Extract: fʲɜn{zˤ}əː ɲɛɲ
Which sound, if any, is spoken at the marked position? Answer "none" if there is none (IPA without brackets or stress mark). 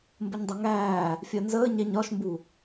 z